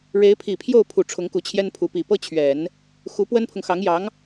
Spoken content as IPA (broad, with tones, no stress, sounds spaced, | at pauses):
ɻ e˧˥ ɪ̯ pʰ i˨˩ pʰ j o˥˩ ʊ̯ pʰ u˨˩ ʈ͡ʂʰ ʊ˧˥ ŋ k u˧˥ t͡ɕʰ j ɛ˥ n pʰ u˧˥ p i˨˩ p ɤ˥ t͡ɕʰ ɥ ɛ˨˩˦ n | x u˧˥ p w ə˥ n pʰ ʊ˨ ŋ x ɑ˧˥ ŋ j ɑ˧˥ ŋ